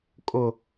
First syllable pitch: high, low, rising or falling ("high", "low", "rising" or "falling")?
low